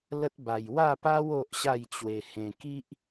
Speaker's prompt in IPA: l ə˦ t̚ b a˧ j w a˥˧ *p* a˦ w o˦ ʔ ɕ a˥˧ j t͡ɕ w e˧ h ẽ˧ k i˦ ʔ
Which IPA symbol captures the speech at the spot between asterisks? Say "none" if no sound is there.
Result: p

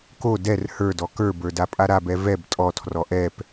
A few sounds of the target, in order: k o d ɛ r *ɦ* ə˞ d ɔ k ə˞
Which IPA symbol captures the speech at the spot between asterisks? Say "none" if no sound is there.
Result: h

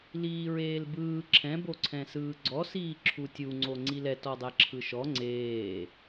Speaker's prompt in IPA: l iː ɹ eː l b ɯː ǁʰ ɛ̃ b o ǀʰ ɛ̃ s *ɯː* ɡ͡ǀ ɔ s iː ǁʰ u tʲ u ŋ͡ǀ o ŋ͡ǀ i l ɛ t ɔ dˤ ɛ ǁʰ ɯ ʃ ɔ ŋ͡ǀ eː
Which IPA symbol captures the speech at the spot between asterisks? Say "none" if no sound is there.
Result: ɯː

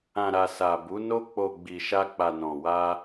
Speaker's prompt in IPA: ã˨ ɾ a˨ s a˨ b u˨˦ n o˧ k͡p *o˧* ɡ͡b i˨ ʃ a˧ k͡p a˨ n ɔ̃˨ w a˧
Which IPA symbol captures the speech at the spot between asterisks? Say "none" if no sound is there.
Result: o˨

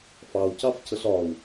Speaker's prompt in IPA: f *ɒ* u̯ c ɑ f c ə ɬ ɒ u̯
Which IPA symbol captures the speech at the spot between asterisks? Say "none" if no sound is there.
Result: ɑ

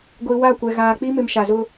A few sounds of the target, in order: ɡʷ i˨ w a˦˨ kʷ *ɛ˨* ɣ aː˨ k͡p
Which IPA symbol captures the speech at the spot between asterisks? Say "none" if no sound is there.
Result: ɛ˨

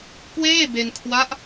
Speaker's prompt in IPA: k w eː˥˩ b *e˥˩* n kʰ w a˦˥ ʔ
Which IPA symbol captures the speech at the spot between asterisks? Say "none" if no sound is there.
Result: e˧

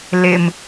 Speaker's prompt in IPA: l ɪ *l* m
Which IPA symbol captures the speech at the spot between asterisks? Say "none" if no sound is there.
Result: none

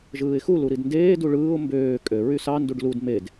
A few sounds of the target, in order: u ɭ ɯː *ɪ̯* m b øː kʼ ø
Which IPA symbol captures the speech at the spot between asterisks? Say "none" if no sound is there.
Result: ʊ̯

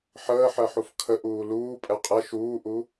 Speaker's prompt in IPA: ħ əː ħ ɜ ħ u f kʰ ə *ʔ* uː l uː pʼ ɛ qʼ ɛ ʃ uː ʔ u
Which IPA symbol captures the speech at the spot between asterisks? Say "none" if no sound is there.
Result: ʔ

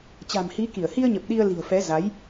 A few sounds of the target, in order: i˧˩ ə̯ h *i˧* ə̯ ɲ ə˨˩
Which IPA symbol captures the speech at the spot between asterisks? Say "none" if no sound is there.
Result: i˧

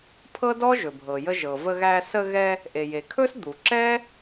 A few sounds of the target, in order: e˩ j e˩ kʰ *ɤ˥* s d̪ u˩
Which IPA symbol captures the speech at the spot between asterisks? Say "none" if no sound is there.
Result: ɵ˥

